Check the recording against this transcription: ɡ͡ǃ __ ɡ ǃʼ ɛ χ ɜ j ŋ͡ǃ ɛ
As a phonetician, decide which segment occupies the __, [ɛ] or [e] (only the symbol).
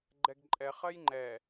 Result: ɛ